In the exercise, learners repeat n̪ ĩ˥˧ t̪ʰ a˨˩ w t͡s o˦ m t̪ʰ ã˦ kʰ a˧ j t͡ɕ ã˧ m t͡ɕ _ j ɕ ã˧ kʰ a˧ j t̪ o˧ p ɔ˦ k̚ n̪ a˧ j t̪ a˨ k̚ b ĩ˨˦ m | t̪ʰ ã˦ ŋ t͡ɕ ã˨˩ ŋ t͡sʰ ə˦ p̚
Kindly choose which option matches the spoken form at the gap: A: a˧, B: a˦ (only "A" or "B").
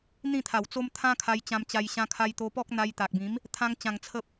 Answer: A